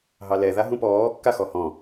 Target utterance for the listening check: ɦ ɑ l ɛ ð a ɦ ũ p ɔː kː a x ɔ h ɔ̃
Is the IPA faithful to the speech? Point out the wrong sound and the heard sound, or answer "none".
none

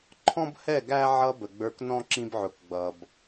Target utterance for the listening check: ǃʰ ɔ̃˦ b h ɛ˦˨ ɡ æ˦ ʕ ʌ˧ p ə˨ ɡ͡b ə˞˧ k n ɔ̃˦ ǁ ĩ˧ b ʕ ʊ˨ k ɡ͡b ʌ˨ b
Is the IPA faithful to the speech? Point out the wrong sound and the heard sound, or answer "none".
p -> b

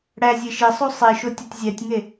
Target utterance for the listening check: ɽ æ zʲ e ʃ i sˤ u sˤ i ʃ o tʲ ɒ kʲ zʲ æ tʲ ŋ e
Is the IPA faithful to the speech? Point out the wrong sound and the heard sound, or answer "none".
kʲ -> tʲ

